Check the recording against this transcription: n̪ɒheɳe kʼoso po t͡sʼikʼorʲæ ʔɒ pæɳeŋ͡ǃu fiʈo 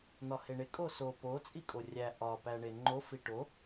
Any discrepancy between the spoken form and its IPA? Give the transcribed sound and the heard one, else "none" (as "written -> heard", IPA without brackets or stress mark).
u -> o